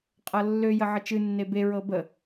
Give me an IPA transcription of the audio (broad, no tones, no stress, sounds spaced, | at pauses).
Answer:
qʼ ɤ lː ø j ə ʕ ə t͡ʃ ɨ nː e b e ɹ ɤ b ə